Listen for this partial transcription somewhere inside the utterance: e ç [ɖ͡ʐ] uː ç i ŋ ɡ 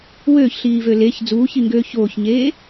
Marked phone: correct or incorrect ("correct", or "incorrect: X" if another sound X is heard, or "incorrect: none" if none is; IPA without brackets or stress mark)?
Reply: incorrect: d͡z